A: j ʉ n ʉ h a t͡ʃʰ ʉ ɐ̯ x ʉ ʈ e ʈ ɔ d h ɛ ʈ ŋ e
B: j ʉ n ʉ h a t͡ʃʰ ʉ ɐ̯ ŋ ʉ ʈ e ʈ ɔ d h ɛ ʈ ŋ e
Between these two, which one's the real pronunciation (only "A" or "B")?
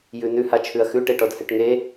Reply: A